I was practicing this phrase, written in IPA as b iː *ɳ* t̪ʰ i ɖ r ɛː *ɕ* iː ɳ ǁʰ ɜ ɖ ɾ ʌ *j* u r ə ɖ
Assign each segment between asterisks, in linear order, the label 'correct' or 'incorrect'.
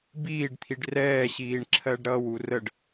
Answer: incorrect: ɖ, correct, incorrect: w

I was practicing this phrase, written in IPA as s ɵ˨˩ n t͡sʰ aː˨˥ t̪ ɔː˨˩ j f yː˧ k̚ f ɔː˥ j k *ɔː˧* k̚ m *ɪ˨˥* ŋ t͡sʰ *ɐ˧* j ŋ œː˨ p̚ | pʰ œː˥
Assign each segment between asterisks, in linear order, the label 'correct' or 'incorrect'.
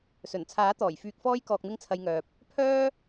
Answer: correct, incorrect: ɪ˥, correct

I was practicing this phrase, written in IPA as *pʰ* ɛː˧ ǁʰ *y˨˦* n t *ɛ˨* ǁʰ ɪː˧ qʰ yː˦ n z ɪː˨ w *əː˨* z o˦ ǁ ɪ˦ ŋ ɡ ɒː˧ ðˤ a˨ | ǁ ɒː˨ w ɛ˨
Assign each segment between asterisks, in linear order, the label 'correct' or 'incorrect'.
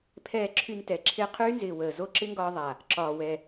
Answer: correct, incorrect: y˧, correct, correct

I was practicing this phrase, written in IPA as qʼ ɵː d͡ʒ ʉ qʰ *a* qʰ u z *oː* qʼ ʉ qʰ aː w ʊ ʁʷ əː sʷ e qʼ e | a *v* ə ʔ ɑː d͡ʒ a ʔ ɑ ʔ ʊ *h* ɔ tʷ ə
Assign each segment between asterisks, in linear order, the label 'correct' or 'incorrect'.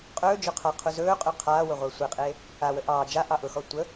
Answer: correct, incorrect: ɵː, incorrect: w, incorrect: x

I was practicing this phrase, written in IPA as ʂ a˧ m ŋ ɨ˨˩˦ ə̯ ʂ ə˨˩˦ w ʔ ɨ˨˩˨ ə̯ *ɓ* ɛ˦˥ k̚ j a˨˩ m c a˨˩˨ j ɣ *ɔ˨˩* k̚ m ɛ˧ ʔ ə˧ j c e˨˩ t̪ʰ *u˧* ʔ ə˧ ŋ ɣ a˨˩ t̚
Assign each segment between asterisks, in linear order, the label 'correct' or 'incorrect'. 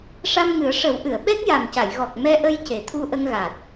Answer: correct, correct, correct

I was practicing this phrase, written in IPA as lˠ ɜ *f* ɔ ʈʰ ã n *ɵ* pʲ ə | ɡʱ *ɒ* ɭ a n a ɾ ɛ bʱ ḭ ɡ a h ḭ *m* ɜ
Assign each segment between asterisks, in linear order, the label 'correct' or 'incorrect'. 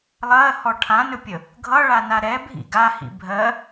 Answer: incorrect: h, correct, incorrect: ʌ, incorrect: bʱ

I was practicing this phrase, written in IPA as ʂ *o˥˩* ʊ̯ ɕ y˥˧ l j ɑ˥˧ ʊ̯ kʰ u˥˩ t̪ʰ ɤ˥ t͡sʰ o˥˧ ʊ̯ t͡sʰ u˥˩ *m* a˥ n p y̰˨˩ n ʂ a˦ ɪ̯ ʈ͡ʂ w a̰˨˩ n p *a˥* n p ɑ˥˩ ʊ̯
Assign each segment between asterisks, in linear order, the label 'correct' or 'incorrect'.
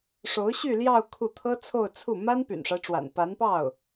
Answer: incorrect: o˧˥, correct, incorrect: a˧˥

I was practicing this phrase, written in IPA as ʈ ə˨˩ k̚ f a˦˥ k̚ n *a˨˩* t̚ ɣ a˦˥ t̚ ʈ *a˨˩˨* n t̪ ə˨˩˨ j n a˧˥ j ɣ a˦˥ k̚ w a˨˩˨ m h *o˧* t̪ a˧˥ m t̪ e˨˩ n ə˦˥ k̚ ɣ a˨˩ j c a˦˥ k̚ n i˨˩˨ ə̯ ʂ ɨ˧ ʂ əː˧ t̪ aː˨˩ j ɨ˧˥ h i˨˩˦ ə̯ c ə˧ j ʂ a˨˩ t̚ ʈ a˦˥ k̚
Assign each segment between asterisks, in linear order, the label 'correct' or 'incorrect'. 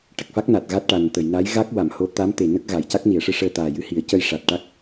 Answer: correct, incorrect: a˨˩, incorrect: o˧˥

